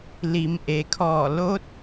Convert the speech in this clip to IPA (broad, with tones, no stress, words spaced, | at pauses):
li˩˧mʔe˩kʰɔː˧˩ lo˧˥t̚